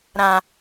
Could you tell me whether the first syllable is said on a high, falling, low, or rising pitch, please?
high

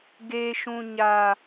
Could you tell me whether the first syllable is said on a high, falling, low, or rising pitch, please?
high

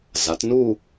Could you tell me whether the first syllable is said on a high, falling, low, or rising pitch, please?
rising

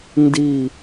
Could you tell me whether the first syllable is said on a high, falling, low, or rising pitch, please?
falling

